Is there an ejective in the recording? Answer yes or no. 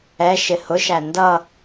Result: no